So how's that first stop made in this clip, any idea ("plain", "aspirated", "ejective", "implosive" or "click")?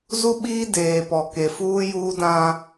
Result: implosive